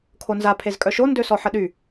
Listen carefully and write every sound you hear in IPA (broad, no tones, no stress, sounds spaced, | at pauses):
kʰ o n z a pʰ e z kʼ œ ʃ o n d ø s ɔ ħ ə ɗ y